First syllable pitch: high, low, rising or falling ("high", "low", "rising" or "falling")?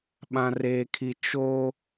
low